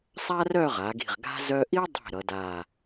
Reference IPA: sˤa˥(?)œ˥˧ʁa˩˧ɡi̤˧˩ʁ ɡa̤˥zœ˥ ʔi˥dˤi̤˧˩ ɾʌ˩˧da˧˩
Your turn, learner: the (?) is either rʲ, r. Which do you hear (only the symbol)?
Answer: r